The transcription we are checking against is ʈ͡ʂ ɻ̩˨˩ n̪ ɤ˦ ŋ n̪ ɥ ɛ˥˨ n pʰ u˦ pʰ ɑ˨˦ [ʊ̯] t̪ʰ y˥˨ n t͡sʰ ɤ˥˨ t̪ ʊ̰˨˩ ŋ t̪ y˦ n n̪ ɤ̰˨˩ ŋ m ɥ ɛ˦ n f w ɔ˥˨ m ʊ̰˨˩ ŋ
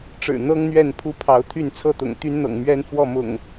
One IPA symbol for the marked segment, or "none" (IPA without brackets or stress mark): ʊ̯